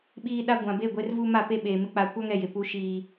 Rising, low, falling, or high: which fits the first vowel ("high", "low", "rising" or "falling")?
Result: high